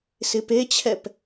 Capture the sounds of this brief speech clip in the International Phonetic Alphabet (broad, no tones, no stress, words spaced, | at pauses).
sɪpet͡ɕʰɛp